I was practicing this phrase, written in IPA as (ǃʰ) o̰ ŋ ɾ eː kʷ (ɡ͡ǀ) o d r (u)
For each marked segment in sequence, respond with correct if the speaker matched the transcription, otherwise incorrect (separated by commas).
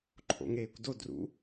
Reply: correct, incorrect, incorrect